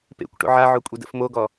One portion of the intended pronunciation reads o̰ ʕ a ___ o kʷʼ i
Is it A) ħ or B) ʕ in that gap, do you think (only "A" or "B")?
B